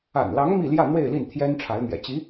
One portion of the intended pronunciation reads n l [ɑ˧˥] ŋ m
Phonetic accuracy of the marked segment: correct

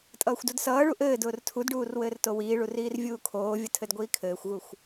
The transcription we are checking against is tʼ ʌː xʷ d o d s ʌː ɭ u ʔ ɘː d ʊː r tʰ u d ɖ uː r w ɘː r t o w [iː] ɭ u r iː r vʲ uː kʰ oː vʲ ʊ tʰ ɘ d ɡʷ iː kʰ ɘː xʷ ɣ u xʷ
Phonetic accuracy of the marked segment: correct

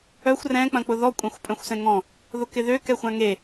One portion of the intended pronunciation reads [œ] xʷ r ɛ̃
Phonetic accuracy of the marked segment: correct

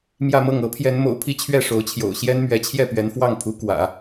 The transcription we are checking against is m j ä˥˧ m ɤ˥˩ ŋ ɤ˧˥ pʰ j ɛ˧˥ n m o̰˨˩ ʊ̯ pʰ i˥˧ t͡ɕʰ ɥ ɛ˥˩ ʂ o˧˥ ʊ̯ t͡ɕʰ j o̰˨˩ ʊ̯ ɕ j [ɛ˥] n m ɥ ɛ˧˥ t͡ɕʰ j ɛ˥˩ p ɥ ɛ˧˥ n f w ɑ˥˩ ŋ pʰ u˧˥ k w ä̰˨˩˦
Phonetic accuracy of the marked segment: correct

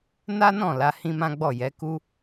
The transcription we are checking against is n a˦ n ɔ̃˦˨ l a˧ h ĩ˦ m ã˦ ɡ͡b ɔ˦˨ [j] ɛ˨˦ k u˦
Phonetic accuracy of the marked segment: correct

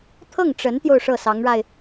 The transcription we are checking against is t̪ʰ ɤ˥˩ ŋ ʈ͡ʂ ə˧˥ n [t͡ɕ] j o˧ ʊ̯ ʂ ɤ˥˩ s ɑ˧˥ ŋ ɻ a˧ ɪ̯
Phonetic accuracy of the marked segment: incorrect: t̪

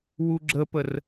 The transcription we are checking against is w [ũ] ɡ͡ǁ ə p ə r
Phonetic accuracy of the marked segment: incorrect: u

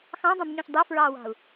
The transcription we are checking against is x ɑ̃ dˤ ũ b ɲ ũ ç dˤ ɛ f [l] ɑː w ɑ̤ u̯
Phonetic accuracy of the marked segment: incorrect: ɹ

